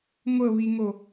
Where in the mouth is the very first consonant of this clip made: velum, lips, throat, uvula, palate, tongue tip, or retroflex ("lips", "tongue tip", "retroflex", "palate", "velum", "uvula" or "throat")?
velum